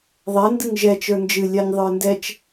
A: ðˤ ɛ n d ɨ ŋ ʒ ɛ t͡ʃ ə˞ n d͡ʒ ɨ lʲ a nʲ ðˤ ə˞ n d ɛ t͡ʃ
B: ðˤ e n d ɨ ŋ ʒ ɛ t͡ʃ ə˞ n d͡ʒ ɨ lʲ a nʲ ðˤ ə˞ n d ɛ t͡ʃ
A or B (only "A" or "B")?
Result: A